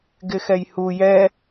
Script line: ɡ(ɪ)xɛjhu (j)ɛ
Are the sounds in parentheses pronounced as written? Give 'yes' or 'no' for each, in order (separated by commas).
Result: yes, yes